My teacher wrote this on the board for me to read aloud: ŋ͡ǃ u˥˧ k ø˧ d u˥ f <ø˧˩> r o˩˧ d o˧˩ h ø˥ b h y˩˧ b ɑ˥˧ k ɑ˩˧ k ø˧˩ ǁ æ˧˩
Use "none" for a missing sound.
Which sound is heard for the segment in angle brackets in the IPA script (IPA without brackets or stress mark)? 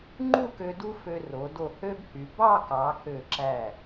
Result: ø˧